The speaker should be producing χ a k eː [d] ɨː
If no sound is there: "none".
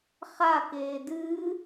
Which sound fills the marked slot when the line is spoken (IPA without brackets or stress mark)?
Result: d